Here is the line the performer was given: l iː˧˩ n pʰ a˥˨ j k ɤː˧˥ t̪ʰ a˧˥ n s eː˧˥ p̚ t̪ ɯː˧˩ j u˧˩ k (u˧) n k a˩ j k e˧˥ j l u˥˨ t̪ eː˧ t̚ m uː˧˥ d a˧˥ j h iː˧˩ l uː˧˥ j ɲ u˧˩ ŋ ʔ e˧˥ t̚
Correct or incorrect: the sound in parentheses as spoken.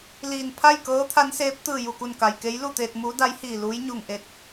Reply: incorrect: u˧˩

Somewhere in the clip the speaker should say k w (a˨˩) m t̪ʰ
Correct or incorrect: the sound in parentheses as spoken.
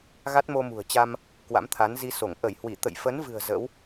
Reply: incorrect: a̰˧˥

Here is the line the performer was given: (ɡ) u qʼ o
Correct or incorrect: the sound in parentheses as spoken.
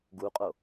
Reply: correct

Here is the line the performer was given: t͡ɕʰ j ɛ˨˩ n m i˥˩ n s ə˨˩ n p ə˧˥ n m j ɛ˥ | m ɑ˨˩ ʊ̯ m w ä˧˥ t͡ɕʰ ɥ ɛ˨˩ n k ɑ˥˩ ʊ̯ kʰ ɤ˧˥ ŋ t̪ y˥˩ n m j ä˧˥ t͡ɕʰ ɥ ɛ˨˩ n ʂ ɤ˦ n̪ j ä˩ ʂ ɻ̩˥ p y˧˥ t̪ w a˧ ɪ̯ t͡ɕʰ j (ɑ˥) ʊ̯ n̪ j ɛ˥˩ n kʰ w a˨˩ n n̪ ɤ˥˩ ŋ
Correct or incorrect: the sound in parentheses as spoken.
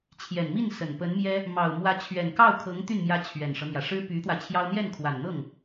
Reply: correct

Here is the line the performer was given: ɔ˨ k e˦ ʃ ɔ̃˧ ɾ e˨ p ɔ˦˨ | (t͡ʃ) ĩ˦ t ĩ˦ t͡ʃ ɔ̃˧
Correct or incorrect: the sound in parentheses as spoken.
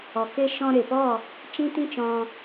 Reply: correct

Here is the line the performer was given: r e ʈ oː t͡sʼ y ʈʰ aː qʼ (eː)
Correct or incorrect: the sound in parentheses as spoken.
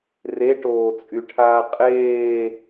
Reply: correct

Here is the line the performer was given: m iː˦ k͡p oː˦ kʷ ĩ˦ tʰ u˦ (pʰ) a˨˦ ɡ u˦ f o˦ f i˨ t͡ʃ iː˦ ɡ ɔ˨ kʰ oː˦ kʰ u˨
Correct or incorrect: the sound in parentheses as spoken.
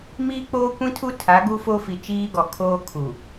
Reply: incorrect: tʰ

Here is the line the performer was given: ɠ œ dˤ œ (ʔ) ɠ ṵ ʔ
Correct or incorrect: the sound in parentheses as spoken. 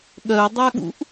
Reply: incorrect: none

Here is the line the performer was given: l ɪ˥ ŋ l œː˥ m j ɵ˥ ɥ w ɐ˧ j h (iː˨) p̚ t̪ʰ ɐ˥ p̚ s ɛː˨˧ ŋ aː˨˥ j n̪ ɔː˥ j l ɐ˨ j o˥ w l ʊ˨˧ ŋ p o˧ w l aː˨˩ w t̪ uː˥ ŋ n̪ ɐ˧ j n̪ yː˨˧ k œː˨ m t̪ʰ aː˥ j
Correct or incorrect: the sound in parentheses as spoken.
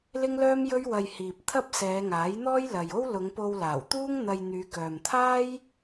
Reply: correct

